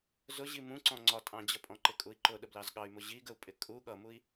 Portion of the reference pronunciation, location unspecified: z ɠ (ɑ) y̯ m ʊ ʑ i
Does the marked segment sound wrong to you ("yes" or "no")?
no